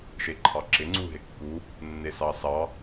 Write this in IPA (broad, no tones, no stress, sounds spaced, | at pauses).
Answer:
ʃ e ǃʰ ɑ ǁ ɪ ŋ͡ǀ u ɦ ɪ kː u | nː e s ɑ s ɑ